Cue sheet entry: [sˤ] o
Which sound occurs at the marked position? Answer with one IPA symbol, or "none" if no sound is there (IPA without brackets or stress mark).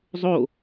zˤ